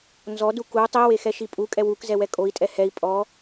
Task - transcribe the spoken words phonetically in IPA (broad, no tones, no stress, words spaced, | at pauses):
nzɔdu ku tˤiwexɛʃi pʼukʼɛ wukzɛwɛ kʼoi̯tʼɛ hɛi̯ pʼɔ